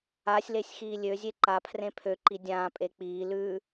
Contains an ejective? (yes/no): yes